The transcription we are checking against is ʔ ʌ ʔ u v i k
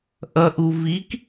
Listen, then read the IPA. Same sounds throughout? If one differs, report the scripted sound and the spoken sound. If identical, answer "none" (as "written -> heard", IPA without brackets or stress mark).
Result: none